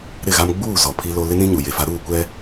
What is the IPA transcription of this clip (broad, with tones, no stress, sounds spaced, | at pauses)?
ɾ ɪ˦˨ ɣ a˦ m ɡ͡b uː˦˨ z ɔ˨ pʰ i˦ l o˦ l ɪ˦ n ĩ˦ ɲ u˨ j e˨ f a˦ ɾ uː˦˨ kʷ ɛ˦